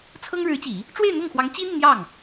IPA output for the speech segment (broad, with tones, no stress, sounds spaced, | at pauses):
t͡sʰ ɤ˥ ŋ ɻ ɻ̩˧˥ t͡ɕ i˨˩˦ | ʈ͡ʂ w e˥˧ ɪ̯ n̪ ɤ˥˩ ŋ x w ɑ˧˥ ŋ t͡ɕ i˥ n̪ i˨ n̪ j ɑ˥˩ ŋ